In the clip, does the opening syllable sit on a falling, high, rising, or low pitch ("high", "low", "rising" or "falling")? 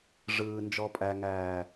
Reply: low